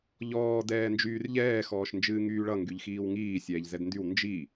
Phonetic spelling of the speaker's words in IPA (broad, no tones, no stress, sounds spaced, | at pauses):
ʎ ɔː d ɛː n d͡ʒ yː r ʎ ɛː x ɔː ʃ n d͡ʒ ɨː ŋ yː ɭ ʌ ŋ ɡ y ʎ x iː w ŋ iː sʲ ɛː ʎ z ɛ d n d y w n d͡ʒ i